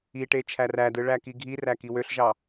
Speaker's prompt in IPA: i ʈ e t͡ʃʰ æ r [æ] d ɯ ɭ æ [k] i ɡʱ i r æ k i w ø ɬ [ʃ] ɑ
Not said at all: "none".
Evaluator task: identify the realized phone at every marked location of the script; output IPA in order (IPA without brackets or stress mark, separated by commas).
æ, k, ʒ